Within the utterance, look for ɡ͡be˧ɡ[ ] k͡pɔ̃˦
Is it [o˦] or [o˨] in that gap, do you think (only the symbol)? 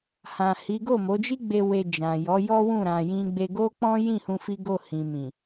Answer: o˦